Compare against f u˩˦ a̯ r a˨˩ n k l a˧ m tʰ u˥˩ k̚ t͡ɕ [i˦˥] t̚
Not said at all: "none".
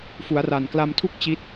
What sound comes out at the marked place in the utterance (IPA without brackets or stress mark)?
i˦˥